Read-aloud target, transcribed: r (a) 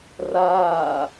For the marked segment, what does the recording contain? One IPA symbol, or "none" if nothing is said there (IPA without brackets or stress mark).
aː